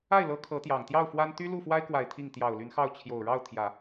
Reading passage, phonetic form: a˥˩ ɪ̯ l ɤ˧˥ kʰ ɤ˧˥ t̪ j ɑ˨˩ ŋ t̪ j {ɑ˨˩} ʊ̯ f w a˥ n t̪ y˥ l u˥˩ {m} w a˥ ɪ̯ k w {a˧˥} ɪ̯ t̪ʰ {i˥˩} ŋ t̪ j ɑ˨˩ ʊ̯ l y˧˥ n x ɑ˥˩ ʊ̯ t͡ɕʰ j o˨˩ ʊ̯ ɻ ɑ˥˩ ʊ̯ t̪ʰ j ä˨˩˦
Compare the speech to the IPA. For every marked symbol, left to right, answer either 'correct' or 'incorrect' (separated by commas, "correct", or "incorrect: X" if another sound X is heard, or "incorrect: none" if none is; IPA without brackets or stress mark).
incorrect: ɑ˥˩, incorrect: f, incorrect: a˨˩, correct